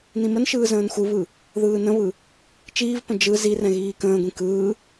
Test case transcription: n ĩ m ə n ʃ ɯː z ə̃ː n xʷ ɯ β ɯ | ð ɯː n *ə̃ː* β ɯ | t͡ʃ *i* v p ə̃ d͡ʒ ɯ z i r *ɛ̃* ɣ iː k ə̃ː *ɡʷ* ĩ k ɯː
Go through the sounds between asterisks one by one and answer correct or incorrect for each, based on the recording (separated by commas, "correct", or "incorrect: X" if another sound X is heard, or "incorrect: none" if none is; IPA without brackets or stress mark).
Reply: incorrect: ə̃, incorrect: iː, correct, correct